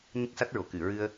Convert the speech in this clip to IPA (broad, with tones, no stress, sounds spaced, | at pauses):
ɲ ə˦˥ k̚ s a˦˥ t̚ ɹ o˨˩˨ k ɨ˨˩˨ ɹ ɨ˧ ə̯